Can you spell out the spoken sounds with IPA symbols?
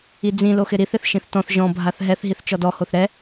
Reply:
id͡zĩ loxɪɾiθ ɪθʃĩθtɔ̃θ ʒɔ̃ bʱaθɦɛθ ɦiθt͡ʃɔdɔ hoθɾɛ

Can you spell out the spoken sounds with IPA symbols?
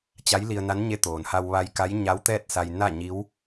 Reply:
t͡ɕa˧˥jli˧ə̯na˧˥nɲe˧˥ t̪oː˩n ha˧wʋa˧j ka˧˥j ɲa˧˥wt̪ɛː˥˨t̚ sa˧j na˥˨ɲi˧˥w

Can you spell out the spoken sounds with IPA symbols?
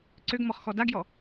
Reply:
ǀøɡmɔχxɔ daɡjɔ

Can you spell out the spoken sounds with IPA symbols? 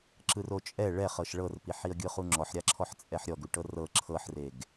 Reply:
ǁɯrot͡ʃʼɛ ɭɛχɤʃ ɭɤrpi ħiə̯ɡʲɯχuŋ͡ǁɔħ ɾʲaǁʰɔħt͡sʼɛħɾʲɔ ɡuʈɤrɤ ǁʰɤħreɡ

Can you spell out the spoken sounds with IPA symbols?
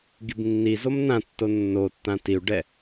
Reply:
ɡibnːizom nãtːo nːotːã tiu̯ɖɛ

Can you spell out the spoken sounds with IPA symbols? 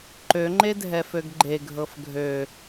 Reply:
ǃøŋ͡ǃe dʱɛføɡɡ͡ǃe ɡʱɤfɡʱø

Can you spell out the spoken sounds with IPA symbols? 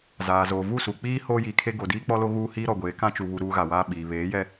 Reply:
zaː˨zoː˨ vu˦˨su˨k͡piː˦ hoː˦jiː˨kʰe˦ ɡo˨diː˦k͡pɔ˦lo˦ ɣuː˦hiː˦ɾɔ˨ɡʷeː˨˦ kã˦t͡ʃu˨βu˨ ɾuː˦ɣa˨waː˦ ɓiː˨ βeː˨˦ jɛ˦

